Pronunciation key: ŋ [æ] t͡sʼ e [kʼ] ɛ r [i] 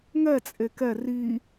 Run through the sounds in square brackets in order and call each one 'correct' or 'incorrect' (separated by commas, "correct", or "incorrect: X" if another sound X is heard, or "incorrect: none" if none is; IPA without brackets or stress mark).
incorrect: ɛ, incorrect: k, correct